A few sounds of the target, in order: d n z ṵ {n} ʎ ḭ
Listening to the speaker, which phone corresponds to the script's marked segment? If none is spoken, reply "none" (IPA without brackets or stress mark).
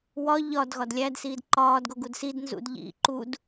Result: d